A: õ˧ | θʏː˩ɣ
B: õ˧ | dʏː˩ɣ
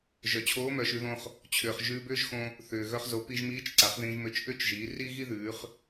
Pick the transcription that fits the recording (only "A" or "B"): A